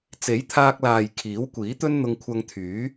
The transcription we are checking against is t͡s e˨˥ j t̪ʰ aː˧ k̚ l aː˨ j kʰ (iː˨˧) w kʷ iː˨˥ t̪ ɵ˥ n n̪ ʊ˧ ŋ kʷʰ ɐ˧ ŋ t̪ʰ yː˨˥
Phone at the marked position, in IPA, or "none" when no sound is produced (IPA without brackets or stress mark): iː˨˥